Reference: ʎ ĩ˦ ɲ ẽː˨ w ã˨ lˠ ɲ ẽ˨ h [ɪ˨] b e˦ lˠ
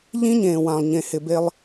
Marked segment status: correct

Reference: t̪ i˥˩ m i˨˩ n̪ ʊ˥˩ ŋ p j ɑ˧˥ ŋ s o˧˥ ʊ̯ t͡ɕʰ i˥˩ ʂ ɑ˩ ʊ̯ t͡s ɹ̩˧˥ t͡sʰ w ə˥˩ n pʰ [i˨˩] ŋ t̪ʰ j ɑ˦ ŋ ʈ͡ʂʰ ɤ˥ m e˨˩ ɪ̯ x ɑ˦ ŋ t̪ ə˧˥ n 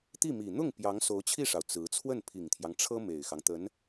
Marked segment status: correct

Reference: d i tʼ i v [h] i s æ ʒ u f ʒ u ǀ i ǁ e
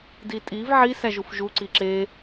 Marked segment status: incorrect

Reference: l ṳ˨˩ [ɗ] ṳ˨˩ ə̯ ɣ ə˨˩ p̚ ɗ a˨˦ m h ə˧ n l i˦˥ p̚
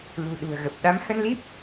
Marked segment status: correct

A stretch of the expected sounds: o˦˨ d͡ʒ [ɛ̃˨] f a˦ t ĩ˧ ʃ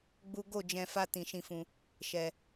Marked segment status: incorrect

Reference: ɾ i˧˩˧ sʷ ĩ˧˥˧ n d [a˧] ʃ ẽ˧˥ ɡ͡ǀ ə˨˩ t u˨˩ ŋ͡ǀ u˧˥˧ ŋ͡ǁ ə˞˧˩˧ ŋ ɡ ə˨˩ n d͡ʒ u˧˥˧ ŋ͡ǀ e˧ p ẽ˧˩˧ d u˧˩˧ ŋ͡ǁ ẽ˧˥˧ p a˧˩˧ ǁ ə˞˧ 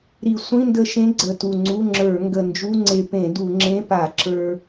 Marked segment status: incorrect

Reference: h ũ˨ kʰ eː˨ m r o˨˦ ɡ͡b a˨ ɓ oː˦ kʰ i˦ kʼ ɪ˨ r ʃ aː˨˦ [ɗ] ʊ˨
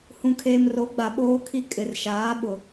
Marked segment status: incorrect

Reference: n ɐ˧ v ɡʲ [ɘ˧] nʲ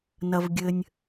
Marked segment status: correct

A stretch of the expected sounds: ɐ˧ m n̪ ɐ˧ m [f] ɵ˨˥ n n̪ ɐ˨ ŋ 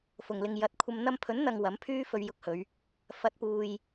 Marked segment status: incorrect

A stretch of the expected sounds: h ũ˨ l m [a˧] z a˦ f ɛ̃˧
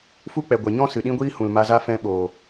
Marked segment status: correct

